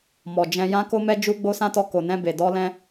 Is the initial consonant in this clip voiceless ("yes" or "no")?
no